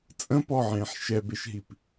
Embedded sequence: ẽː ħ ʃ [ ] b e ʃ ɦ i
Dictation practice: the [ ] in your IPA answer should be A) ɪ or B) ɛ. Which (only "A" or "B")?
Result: B